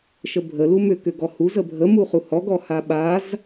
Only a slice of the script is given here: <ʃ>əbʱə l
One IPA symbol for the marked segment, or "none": ʃ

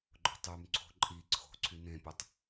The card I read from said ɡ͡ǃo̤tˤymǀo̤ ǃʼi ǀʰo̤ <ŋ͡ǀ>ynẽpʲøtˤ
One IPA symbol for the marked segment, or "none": ǀʰ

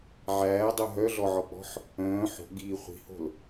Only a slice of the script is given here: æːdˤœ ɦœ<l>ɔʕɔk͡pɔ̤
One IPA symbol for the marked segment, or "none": ɮ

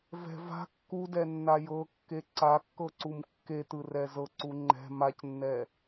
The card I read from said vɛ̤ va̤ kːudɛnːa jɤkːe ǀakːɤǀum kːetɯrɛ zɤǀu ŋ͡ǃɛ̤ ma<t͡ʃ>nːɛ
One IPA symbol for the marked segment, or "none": c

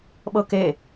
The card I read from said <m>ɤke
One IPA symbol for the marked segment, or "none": ɓ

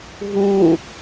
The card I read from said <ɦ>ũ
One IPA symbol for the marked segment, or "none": ɦ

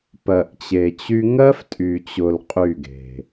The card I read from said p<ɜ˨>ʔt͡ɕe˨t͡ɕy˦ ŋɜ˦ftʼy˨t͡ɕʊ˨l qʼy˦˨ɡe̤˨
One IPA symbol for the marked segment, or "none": ɜ˨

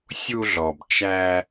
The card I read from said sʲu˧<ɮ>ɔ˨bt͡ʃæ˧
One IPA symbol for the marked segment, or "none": ɮ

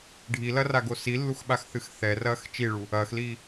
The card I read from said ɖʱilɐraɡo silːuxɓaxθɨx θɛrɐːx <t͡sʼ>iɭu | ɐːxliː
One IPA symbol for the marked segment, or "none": t͡ʃ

